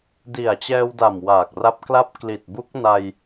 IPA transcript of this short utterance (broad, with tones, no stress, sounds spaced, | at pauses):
d i˨˩ a̯ t͡ɕ ɛː˧ w d a˨˩ m w aː˨˩ k̚ r a˦˥ p̚ k l a˦˥ p̚ k l i˨˩ t̚ b u˦˥ k̚ n a˧ j